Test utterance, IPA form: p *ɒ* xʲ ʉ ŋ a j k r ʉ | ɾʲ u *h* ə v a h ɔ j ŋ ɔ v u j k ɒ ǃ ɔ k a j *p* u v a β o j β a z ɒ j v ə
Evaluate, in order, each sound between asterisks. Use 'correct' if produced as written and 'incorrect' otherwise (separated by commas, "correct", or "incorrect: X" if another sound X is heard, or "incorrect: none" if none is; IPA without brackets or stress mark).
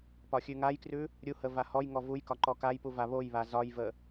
correct, correct, correct